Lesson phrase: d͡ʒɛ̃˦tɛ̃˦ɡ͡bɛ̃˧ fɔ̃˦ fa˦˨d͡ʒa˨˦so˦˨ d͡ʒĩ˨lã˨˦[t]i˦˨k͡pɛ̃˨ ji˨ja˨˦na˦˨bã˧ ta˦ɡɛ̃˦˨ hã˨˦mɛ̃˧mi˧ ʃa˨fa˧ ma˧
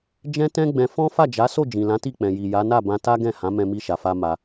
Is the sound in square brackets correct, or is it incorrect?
correct